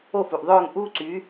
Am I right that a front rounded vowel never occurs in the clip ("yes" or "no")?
no